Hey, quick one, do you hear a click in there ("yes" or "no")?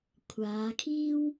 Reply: no